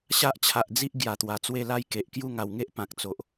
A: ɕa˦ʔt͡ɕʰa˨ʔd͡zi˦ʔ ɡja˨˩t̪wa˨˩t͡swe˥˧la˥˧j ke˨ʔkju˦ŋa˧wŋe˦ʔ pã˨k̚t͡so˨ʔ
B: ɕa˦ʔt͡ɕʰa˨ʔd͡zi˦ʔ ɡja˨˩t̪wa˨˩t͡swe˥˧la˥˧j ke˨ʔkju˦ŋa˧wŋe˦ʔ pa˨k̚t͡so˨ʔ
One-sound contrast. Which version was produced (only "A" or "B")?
A